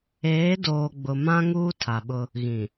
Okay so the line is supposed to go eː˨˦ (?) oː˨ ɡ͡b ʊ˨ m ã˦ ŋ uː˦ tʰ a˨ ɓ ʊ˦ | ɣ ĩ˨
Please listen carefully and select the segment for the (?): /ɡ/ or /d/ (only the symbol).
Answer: d